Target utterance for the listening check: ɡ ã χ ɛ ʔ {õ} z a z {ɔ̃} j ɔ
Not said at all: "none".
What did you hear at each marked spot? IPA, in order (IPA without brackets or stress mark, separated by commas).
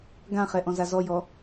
ɔ̃, ɔ